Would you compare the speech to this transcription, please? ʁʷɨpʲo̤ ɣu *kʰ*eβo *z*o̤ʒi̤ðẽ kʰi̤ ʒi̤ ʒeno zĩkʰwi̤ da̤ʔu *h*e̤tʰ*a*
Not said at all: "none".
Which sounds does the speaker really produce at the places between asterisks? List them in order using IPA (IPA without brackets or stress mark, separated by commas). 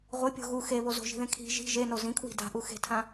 x, z, x, ã